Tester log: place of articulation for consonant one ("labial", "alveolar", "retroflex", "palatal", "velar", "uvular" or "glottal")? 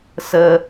alveolar